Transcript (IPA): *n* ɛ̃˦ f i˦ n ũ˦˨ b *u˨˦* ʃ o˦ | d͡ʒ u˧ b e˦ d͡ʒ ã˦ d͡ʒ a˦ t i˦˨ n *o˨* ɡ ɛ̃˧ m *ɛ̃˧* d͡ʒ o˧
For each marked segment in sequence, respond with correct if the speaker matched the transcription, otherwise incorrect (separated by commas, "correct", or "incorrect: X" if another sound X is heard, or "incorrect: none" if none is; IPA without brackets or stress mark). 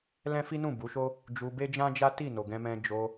incorrect: l, correct, correct, correct